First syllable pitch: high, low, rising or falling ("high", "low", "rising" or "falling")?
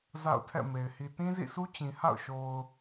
falling